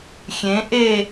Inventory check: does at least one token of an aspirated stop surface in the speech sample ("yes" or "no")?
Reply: no